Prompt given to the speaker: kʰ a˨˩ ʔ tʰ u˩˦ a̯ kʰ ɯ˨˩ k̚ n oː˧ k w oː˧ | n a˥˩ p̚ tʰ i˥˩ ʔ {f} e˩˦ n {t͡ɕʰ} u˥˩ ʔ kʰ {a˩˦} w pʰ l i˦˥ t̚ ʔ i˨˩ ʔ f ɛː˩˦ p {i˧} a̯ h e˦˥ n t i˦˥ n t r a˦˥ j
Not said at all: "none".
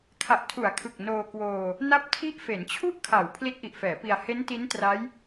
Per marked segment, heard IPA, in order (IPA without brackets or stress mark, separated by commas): f, t͡ɕʰ, a˩˦, i˧